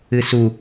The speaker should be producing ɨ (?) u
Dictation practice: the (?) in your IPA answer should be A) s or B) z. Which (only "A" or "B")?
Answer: A